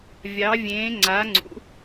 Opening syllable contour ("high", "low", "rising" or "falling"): rising